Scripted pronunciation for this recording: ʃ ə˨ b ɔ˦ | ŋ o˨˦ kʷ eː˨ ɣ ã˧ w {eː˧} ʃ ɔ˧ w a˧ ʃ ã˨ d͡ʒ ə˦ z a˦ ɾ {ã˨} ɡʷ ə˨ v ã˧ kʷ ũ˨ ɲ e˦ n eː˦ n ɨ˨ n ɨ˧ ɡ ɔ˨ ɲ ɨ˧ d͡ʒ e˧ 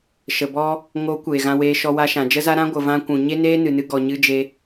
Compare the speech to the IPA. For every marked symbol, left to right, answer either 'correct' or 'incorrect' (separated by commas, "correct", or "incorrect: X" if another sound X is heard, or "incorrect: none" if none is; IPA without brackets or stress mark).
correct, incorrect: ã˦